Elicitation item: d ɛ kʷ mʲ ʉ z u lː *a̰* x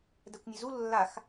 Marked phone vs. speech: incorrect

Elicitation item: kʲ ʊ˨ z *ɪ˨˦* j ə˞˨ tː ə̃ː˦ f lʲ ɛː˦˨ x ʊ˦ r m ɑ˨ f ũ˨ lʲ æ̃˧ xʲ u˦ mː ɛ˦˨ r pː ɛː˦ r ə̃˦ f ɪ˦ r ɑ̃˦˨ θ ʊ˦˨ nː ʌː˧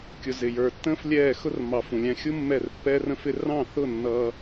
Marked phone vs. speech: incorrect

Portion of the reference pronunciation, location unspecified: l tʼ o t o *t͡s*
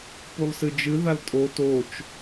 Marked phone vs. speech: incorrect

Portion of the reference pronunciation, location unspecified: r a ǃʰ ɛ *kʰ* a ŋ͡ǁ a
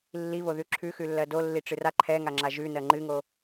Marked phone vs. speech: incorrect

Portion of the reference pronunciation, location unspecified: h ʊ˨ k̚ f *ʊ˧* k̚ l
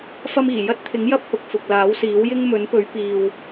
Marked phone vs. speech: incorrect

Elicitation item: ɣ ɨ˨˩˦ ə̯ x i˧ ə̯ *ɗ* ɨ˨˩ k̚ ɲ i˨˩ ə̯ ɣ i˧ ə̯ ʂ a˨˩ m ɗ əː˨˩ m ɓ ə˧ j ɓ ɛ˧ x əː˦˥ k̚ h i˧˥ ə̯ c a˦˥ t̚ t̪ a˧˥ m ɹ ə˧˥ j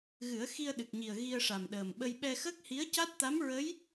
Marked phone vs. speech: correct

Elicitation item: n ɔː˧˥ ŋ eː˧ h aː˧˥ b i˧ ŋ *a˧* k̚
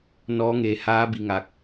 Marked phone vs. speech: correct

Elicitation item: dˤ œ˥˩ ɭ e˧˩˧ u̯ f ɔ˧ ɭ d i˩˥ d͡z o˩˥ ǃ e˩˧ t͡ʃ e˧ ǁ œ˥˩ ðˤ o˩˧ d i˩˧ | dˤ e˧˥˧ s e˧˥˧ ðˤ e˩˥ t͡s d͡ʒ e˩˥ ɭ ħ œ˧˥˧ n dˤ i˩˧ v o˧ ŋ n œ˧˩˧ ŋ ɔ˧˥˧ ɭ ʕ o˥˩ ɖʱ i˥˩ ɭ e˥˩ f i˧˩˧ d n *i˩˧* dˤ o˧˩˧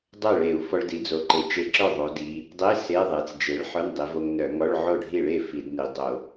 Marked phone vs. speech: correct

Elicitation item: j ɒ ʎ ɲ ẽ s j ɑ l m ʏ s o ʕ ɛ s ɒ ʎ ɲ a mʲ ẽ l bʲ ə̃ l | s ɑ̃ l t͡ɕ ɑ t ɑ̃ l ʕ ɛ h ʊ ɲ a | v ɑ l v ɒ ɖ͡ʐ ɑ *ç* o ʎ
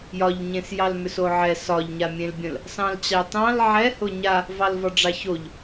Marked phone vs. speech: correct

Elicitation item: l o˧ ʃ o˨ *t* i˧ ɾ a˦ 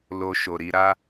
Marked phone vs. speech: incorrect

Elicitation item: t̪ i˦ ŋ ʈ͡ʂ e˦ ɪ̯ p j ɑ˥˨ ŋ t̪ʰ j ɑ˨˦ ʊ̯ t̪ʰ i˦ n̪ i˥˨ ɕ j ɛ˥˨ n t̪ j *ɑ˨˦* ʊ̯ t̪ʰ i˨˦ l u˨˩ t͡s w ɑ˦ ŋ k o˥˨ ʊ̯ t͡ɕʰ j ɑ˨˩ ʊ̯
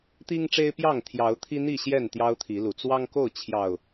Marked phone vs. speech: incorrect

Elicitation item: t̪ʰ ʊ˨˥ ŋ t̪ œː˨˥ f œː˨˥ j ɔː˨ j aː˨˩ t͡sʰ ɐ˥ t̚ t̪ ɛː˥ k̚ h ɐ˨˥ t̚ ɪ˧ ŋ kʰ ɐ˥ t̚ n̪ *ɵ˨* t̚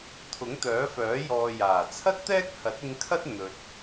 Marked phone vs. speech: correct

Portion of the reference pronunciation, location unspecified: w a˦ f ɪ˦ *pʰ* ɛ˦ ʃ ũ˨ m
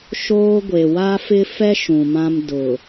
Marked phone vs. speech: incorrect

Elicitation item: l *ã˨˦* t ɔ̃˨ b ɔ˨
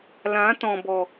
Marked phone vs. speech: correct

